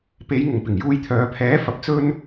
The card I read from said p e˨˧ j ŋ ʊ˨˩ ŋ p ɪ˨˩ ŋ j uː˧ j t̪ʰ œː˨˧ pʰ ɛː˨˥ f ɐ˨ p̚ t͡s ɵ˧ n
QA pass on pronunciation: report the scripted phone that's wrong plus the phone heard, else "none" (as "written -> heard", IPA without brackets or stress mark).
none